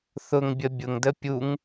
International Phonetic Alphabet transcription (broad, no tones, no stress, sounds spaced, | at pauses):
θ ʊ ŋ bʲ ə bʲ ʊ ŋ d ə pʲ u ŋ